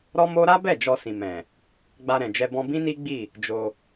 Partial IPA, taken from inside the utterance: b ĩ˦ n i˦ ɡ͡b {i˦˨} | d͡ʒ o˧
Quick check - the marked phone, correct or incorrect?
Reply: correct